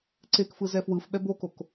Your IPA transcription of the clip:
ǀ e k f ɯ z ɛ f w ɯ f ɓ ɛ b o k o k

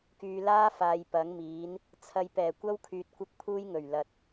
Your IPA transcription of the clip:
k yː˨ l aː˥ f aː˨ j p ɐ˨˥ ŋ m iː˨˥ n | t͡sʰ ɐ˨ j p ɛː˨˩ kʷ ɐ˥ w kʰ yː˧ t̚ kʷ ɐ˥ k̚ pʰ uː˥ j ŋ ɵ˨˩ ɥ l ɐ˨ t̚

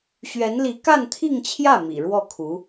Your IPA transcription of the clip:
ɕ ɥ ɛ˧˥ n l i˧˥ k a˥˧ n t̪ʰ i˥˧ ŋ t͡ɕʰ j ä˥˩ m ḭ˨˩ ɻ w ɔ˥˩ kʰ u˧˥

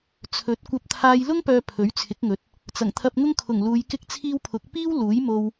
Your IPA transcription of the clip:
t͡sʰ ɵ˨˥ t̚ kʷ ɐ˧ p̚ t̪ʰ aː˧ j l ʊ˥ ŋ p œː˨ pʰ ɵ˨˥ ɥ t͡sʰ ɪ˨˥ k̚ ŋ ɵ˨˥ t̚ | t͡s ɐ˨˩ ŋ t̪ʰ ɐ˧ p̚ ŋ ʊ˥ ŋ kʰ ʊ˨˩ ŋ l uː˨˧ j k ɪ˥ k̚ t͡sʰ iː˥ w pʰ ʊ˨˥ k̚ p iː˥ w l uː˨˥ j m o˧ w

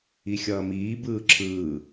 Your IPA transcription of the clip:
i xʲ ʌː m iː b ɯː ǁʰ ɯː

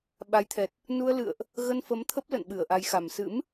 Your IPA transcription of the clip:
ɓ a˨˦ j t̪ʰ ɛ˨˩ t̚ | n u˧ ə̯ l ɨ̰˧˨ ə̯ ʔ | ɣ ə˧ n f ə˨˦ m t̪ʰ ə˦˥ p̚ l ə̰˧˨ n ɓ ɨ˧˩ ə̯ ʔ a˨˦ j x a˨˩ m s ɨ̰˧˥ m

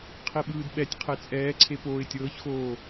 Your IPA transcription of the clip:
qʰ i ɓ ɯː d ɓ ɛ tʲ qʰ e t͡sʼ ɛː ǀʰ e p oː ɪ̯ tʲ ɤː ç x oː

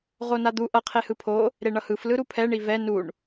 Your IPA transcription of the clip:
ʁ o n a d̪ u ʔ ʌ qʰ e h ɯ pʰ o | ɾ e ɳ ʌ h ɯ f l ɯ ɾ u pʰ ɛ ɳ i v ɛ n u ɳ

